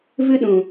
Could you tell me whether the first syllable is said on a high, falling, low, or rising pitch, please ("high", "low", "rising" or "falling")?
high